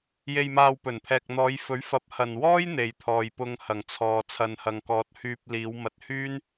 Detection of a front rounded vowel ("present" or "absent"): present